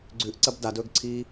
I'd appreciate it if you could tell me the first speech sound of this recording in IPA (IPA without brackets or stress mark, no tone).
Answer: ɡ͡ǀ